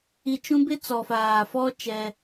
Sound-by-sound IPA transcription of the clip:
i˨ t͡ʃ ũ˦ b ɪ˦ t͡s ɔ˨ f aː˨ f ɔ˦ t͡ʃ ɛ˦

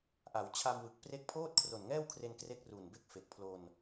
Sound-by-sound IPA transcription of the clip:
ʔ a˩˦ w t͡ɕʰ a˧ m w ɯ˨˩ k̚ p r e˦˥ k̚ pʰ oː˥˩ t̚ kʰ r o˨˩ n ŋ ɛː˥˩ w kʰ r e˧ n k r e˦˥ k̚ r u˨˩ n b e˥˩ k̚ f e˨˩ k̚ pʰ l o˧ n

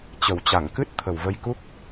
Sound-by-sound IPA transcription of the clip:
t͡ɕ ə˨˩ w t͡ɕ a˧˩ ŋ k ɨ˦˥ t̚ t̪ʰ ə˨˩ w v ə˧ j k u˦˥ k̚

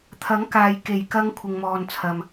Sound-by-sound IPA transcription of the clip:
t̪ʰ ɐ˨˥ ŋ k aː˨ j k e˨˩ j k ɐ˨˧ ŋ kʷʰ ɪ˨ ŋ m ɔː˨ n t͡sʰ ɐ˨ m

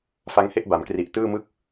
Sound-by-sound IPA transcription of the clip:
f a˦˥ ŋ h e˥˩ ʔ b a˩˦ m k r i˨˩ ʔ t ɯː˥˩ m ɯ˥˩ k̚

